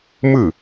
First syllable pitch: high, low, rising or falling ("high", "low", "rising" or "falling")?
falling